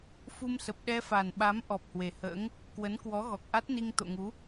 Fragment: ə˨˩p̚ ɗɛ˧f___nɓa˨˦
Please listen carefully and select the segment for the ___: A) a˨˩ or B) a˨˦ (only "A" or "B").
A